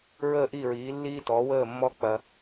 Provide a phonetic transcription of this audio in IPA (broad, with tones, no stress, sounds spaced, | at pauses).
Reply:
ɹ əː˥˩ ʔ i˥˩ ɹ iː˩˥ lː iː˥ t ɔː˩˥ w əː˥˩ mː ɔ˥ k͡p ɐ˧